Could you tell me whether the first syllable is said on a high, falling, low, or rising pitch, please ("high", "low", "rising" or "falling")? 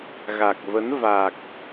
low